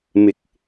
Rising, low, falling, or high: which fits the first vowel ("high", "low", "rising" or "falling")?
low